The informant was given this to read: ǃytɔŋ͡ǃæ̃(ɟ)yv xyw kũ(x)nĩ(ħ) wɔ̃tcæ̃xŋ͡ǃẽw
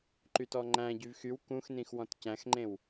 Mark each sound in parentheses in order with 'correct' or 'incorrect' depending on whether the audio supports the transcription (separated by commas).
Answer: correct, correct, incorrect